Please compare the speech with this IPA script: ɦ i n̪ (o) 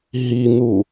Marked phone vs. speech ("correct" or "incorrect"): incorrect